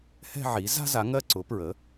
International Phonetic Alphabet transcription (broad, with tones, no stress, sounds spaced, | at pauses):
h ɛ̤˥˧ ʕ i˩˥ z a̤˥ z a˩˥ ŋ ɜ˥˧ ǀ ʊ˩˥ p ɹ ə˩˥